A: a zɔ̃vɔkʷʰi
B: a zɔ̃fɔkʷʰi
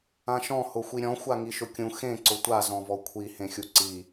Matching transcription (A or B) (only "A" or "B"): A